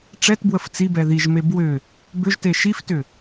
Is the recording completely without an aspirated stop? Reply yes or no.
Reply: yes